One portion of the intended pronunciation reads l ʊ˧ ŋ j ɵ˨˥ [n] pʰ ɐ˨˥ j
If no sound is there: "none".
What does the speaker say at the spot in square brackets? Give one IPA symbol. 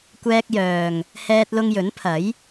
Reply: n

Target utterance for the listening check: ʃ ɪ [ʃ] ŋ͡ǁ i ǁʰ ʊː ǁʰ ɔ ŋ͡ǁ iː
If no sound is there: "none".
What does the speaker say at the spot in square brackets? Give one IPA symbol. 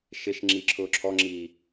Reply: ʃ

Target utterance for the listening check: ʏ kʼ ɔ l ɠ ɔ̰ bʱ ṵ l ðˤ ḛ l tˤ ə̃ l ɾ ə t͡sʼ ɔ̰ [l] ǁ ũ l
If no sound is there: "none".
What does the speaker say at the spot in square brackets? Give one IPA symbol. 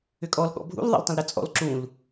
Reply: l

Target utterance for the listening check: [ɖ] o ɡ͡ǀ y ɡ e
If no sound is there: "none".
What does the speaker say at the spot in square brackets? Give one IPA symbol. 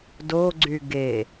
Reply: d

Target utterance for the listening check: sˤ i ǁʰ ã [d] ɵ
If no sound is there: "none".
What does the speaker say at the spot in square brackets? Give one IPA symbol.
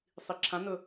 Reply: n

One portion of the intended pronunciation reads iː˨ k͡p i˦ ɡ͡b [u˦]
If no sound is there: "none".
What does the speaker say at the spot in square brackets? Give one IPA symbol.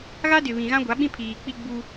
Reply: u˦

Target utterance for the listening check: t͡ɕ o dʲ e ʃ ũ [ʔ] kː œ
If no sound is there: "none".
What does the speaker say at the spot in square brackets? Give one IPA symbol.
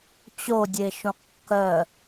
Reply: q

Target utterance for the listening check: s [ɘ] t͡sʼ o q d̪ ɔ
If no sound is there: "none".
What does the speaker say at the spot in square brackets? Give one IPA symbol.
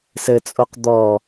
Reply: ɘ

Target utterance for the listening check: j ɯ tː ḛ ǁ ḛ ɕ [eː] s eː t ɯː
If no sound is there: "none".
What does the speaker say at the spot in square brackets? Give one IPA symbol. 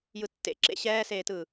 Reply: ɛː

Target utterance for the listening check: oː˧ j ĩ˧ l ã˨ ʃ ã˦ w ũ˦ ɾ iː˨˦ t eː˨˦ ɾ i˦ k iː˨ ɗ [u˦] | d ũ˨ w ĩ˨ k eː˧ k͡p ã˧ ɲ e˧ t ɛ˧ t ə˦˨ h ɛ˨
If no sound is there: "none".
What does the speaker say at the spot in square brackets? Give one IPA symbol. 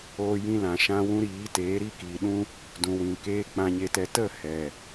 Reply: ũ˦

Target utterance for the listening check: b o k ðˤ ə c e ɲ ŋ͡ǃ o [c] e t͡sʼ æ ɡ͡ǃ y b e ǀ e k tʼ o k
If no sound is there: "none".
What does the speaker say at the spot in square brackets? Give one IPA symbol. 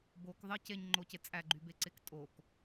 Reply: c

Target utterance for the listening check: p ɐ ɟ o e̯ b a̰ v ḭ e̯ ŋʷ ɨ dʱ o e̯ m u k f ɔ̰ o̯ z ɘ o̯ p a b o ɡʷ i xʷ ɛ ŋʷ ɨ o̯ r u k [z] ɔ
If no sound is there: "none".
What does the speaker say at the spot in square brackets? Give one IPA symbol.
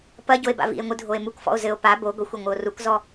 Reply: z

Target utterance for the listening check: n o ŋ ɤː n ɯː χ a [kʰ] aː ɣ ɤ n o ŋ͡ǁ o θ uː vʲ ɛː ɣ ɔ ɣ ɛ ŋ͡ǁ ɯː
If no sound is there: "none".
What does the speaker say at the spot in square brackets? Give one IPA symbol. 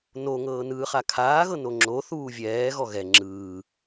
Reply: kʰ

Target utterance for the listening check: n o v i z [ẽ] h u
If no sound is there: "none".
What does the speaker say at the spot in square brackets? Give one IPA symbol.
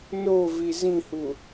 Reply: ĩ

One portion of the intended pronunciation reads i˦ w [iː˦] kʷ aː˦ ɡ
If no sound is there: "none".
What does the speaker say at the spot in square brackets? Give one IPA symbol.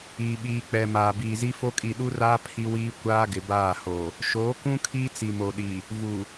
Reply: iː˦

